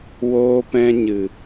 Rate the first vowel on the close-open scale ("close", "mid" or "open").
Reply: mid